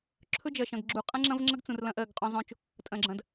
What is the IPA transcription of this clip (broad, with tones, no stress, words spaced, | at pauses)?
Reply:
ǁʰɵ˦d͡ʒɐ˨ʃɐ̃˨ɡɡ͡ǁu˨ qʼɐ̃˦ŋ͡ǁɐ̃˦vŋ͡ǁɐ˦ɡt͡sũ˨r lɐ̃˦ʔɜ˦˨ɡqʼõ˦zˤõ˦t͡ʃ | tʼɐ̃˨ɡ͡ǁɐ̃˨d